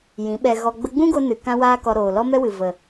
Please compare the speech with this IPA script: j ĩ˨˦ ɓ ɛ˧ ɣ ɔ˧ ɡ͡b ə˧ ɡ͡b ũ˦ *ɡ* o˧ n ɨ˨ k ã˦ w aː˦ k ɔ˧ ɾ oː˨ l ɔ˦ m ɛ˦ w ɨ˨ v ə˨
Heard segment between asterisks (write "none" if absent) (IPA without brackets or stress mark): ɡ